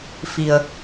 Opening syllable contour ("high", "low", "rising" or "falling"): low